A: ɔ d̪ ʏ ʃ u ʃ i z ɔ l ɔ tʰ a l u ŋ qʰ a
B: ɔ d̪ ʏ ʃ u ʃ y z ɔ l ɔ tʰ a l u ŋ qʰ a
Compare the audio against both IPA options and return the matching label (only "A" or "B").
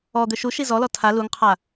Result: A